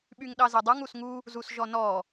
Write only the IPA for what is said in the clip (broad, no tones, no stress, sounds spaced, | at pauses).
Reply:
ɓ y ŋ ɗ ɑ z e dˤ u ŋ u s ŋ u | z u s ʒ ɔ n ɔ